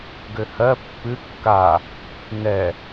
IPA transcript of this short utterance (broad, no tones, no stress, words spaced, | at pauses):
ɡøhɜ pːɨ kːa | nɛ